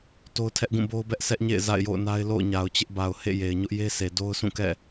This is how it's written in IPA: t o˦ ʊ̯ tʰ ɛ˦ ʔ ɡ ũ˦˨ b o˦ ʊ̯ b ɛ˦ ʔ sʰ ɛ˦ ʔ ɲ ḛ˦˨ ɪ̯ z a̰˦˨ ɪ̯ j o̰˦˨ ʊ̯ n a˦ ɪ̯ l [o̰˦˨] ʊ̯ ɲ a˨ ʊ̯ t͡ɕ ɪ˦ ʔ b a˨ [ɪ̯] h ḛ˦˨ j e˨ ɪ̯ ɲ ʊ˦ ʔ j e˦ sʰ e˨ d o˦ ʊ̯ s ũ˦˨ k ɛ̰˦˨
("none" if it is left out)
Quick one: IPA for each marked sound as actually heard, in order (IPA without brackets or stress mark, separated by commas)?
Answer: o̰˦˨, ʊ̯